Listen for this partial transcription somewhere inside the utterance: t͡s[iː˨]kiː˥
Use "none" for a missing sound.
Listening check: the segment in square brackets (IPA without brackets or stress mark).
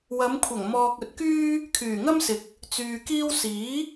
yː˨